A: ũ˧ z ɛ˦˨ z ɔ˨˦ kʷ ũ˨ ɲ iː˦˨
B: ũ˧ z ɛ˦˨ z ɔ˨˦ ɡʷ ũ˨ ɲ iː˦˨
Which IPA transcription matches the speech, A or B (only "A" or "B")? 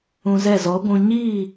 B